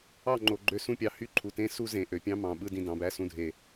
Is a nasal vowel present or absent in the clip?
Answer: present